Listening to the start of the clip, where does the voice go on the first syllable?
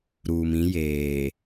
low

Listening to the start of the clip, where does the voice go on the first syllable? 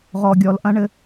low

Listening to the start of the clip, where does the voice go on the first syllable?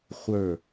falling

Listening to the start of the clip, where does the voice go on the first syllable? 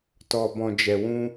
low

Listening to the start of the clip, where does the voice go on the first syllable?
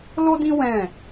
high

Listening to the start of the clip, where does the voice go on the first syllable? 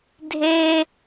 high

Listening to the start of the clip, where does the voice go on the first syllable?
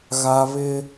high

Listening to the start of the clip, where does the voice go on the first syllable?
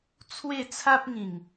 falling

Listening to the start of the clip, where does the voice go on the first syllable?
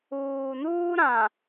low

